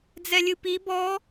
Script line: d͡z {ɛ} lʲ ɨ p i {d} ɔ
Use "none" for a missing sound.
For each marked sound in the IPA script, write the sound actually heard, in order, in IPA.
ɛ, b

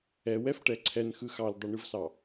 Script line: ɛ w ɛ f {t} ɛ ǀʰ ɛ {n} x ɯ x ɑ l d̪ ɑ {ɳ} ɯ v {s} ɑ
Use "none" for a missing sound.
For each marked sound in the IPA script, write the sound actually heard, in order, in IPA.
ʈ, n, ɳ, s

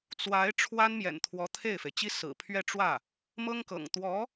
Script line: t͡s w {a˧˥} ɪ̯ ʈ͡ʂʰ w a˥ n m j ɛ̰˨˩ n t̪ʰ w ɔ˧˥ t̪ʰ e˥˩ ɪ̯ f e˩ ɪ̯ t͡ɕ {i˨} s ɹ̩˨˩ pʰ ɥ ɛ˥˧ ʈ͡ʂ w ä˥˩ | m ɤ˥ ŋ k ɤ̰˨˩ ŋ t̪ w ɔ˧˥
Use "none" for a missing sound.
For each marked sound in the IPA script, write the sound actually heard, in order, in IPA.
a˧˥, i˥

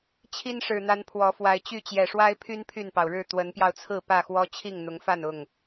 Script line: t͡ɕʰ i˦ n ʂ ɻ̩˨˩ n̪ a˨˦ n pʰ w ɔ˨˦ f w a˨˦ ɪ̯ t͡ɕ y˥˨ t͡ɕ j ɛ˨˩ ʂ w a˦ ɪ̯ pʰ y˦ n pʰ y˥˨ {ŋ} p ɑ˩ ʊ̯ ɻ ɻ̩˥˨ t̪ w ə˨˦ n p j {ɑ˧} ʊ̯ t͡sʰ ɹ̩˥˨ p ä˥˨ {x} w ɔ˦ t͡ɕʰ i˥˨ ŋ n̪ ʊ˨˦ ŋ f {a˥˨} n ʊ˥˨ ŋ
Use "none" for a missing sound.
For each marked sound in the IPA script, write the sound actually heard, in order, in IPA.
n, ɑ˧, x, a˥˨

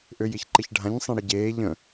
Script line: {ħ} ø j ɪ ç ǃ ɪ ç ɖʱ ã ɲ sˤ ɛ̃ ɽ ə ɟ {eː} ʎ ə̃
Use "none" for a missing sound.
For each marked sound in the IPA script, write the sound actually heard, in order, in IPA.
ʔ, eː

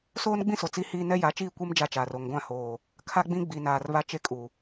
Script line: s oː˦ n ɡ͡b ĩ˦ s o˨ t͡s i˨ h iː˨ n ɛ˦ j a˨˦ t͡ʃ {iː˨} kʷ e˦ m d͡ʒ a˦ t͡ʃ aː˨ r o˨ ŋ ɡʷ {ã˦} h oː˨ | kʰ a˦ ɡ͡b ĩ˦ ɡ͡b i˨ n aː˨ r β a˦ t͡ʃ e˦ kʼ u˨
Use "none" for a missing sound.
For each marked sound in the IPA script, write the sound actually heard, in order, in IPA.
iː˦˨, ã˦˨

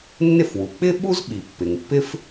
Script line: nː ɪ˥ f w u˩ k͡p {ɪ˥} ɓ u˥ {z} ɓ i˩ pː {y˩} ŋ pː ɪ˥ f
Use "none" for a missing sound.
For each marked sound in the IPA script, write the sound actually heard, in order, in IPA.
ɪ˥, z, ɪ˩

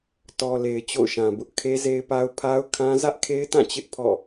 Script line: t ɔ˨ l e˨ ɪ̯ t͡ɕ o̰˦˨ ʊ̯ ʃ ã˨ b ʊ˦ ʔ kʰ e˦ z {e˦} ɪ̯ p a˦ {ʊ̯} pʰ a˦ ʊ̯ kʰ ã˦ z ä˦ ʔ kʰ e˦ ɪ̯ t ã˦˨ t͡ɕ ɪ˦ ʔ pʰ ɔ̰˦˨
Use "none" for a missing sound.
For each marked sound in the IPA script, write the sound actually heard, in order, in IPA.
e˦, ʊ̯

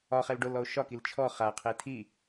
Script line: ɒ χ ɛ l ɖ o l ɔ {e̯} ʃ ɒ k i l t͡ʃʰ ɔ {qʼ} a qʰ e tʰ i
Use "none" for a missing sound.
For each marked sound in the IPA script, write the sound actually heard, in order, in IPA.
o̯, χ

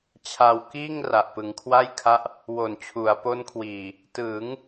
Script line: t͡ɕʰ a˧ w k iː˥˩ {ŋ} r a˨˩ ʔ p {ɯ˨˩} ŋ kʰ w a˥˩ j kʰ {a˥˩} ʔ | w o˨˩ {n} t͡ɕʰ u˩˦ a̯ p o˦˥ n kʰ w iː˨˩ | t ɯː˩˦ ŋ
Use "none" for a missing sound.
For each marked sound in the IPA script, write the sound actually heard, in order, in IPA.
ŋ, ɯ˩˦, a˦˥, n

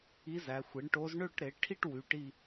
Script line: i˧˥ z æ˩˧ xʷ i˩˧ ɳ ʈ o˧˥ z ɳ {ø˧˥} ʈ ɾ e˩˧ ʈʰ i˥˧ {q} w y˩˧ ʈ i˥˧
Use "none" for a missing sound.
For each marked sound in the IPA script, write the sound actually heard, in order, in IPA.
ø˥˧, ʈ

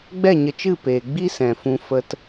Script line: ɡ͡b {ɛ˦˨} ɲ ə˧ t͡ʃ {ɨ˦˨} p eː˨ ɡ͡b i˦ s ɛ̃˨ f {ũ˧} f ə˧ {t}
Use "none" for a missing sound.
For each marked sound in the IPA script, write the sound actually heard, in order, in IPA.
ɛ˦˨, ɨ˦˨, ũ˧, t

